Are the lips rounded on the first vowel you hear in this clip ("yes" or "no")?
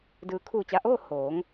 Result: no